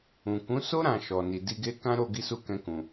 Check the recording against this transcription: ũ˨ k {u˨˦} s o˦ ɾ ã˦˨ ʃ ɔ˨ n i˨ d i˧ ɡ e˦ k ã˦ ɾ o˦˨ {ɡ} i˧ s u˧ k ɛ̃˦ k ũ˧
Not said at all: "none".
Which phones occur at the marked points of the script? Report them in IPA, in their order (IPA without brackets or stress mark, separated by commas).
ũ˨˦, ɡ